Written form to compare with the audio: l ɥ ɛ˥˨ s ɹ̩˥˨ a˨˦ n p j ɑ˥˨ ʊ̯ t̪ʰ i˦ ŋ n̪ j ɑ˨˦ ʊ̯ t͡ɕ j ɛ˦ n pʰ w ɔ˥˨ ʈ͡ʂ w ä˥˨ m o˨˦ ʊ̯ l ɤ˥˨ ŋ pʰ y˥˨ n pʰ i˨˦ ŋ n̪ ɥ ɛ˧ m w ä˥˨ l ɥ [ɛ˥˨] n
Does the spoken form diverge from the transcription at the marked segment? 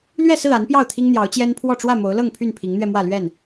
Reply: no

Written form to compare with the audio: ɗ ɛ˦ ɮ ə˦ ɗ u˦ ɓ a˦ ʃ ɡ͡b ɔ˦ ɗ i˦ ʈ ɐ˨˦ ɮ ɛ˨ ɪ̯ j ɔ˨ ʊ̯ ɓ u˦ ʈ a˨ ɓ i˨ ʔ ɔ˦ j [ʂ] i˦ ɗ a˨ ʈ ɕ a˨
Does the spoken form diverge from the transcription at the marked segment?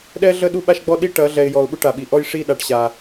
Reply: no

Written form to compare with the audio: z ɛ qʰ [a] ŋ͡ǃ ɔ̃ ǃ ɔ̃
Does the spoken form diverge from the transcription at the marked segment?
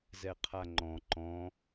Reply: no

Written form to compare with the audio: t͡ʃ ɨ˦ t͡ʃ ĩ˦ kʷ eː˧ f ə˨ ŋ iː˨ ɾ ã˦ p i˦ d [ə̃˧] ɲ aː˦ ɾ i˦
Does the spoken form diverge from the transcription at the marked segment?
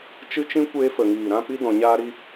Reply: yes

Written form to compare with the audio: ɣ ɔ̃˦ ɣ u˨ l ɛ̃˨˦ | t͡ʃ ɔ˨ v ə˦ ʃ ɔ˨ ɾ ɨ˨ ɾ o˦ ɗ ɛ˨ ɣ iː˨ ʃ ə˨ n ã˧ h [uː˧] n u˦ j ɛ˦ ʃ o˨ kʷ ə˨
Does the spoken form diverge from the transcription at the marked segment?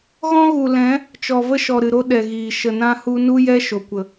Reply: yes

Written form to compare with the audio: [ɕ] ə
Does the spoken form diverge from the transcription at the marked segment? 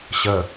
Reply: no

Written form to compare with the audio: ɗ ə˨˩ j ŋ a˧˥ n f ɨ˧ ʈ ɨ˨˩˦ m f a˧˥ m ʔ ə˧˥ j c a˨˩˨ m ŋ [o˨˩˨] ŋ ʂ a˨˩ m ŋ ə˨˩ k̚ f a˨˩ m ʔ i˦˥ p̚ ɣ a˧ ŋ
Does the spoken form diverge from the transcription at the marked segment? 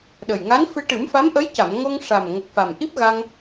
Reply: yes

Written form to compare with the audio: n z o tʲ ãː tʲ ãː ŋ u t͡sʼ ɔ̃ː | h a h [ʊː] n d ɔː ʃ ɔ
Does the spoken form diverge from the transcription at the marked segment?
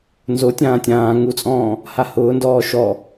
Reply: no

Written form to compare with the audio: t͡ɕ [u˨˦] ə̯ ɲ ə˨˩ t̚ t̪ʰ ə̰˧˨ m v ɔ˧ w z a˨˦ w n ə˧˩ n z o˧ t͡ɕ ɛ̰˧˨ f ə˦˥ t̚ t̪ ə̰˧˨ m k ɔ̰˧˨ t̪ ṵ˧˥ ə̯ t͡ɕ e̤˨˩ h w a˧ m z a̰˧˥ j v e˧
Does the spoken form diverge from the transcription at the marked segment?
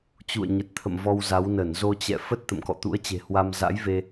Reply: yes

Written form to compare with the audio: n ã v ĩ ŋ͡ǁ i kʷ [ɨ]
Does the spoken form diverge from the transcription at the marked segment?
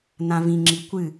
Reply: no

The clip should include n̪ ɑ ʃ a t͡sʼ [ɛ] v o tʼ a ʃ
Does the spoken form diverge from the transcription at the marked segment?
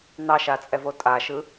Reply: no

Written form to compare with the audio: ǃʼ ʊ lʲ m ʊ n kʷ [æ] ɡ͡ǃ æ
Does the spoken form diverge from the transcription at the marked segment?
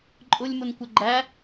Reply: yes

